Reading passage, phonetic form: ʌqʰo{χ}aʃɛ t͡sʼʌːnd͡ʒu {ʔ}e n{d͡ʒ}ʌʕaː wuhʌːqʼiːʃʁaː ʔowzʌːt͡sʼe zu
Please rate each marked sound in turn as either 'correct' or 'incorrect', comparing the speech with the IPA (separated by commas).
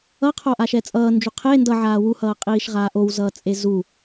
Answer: incorrect, incorrect, incorrect